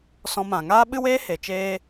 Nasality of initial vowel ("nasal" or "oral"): nasal